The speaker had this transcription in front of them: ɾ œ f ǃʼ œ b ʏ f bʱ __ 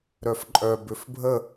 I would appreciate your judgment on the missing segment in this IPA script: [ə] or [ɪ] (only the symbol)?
ə